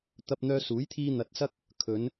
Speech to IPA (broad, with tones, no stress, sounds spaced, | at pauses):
t̪ ɐ˧ p̚ n̪ œː˧ s uː˨˥ j t̪ʰ iː˧ n̪ ɐ˨ t̚ s ɐ˧ k̚ | kʰ ɵ˨˧ n